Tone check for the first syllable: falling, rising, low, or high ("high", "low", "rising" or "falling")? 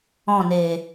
falling